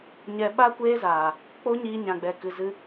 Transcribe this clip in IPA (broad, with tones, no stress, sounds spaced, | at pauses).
ɲ ɛ˧ ɓ a˦ kʷ eː˦ z aː˨ | k͡p o˦ ɲ iː˧ ɲ ã˨ ɡ͡b ɛ˨ k ɨ˧ z ɨ˦